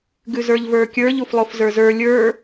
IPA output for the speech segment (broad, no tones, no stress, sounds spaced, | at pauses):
ɡ ʉ z ə˞ ʎ v ə˞ kʲ ə˞ ʎ u f lˠ o f z ə˞ z ə˞ lʲ ə˞